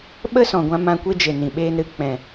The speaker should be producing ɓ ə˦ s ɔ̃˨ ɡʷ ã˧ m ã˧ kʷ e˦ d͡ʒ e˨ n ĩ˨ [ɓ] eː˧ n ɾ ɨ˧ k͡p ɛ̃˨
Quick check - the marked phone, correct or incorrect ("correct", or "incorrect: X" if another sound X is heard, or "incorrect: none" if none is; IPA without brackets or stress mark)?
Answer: correct